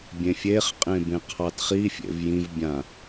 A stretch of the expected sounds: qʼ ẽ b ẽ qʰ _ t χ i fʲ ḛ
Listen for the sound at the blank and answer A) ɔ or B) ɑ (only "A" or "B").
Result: B